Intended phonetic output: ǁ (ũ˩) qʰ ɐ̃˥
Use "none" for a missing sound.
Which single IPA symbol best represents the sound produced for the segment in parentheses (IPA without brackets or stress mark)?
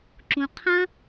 ũ˩